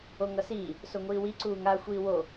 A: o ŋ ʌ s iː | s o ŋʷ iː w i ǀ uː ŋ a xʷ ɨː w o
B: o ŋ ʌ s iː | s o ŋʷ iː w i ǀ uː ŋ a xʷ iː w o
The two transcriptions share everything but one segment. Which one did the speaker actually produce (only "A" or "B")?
B